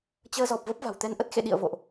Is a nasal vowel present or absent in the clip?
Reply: absent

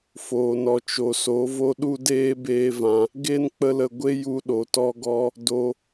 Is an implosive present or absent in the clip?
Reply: present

